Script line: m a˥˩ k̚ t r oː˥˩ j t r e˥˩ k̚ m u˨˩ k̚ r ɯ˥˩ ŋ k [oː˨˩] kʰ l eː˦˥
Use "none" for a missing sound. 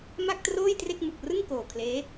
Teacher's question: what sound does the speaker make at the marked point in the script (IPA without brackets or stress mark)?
oː˨˩